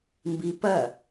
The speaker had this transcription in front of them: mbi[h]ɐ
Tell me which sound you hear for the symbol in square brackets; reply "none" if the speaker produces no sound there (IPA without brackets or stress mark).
p